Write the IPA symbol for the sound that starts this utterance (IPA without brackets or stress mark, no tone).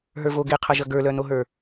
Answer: ɦ